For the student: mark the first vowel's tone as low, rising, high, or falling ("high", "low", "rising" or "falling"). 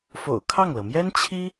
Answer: low